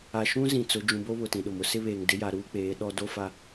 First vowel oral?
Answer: yes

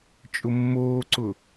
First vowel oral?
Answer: yes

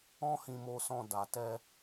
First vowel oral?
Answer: no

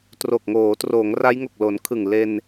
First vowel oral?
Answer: yes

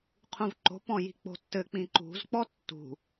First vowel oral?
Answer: no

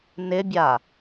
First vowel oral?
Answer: yes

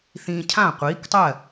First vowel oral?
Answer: no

